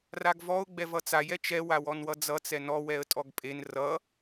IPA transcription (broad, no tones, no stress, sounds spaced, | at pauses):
r a ɡ v ɔ ʊ̯ ɡ͡b ɛ v ʌ t͡s a j ɛ t͡ʃ ɛ w a w ɔ n w ʌ d͡z ʌ t͡s ɛ n ɔ w ɛ ə̯ tʼ ɔ ɡ pʼ e n r ʌ